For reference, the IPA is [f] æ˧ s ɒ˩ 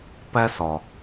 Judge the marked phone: incorrect: p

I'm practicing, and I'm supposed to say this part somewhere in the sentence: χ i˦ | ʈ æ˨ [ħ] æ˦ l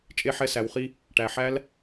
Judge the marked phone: correct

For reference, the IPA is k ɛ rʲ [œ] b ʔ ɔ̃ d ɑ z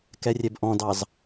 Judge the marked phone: incorrect: ɛ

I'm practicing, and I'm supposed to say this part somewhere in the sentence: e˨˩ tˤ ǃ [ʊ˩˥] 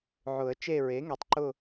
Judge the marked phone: incorrect: ʊ˦˨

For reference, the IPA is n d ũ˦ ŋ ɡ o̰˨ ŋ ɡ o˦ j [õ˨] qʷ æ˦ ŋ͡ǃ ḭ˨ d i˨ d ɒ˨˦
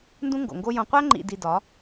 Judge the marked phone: incorrect: õ˧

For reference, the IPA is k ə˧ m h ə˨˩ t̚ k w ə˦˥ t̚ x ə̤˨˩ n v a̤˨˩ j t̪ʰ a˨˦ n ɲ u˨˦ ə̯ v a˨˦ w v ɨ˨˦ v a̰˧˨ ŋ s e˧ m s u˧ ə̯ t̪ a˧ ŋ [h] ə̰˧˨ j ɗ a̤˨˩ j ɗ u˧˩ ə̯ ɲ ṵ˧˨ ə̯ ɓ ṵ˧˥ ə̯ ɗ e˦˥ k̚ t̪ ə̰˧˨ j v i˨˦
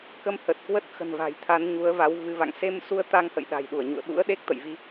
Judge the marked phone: correct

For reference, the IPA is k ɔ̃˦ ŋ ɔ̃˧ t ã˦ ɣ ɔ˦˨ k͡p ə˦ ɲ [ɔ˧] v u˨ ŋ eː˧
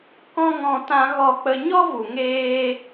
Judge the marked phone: incorrect: ɔ˦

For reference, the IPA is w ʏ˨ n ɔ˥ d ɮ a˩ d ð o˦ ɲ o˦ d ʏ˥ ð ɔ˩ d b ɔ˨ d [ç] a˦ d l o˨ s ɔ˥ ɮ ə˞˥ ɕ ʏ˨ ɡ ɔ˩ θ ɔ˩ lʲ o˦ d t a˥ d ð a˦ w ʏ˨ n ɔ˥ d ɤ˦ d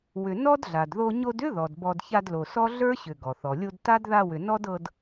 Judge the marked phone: correct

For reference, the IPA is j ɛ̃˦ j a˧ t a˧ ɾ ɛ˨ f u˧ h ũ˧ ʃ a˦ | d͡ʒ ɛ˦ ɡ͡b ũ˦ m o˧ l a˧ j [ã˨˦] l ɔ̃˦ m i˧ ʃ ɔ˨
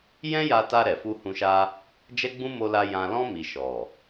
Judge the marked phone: incorrect: ã˧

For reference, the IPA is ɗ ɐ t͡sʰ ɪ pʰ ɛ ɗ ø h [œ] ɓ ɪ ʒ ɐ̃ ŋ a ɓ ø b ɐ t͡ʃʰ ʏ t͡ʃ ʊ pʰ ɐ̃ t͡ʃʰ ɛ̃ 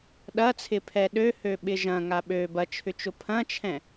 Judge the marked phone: incorrect: ø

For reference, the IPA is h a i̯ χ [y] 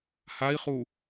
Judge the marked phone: incorrect: u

